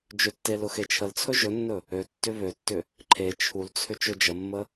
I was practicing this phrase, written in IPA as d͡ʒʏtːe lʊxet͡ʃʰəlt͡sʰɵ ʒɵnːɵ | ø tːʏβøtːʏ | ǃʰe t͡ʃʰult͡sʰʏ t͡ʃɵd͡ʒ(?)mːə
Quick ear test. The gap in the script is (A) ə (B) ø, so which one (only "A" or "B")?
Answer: A